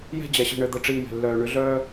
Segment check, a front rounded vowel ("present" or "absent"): present